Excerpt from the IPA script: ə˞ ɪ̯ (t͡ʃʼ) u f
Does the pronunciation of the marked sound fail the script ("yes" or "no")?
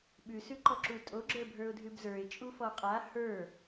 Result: no